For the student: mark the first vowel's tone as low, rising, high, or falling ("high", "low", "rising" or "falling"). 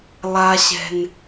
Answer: low